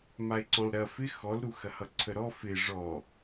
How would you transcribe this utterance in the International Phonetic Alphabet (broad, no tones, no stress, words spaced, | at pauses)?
mae̯ǀɔ̃lɾɐ fɪ xɔlɾu xɐhʌǀʰəɾɔ fɪ ʐɔ